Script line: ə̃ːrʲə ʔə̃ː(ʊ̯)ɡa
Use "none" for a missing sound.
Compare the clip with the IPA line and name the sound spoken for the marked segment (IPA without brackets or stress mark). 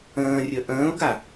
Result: ʊ̯